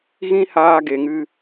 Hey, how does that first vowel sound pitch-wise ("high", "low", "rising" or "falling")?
high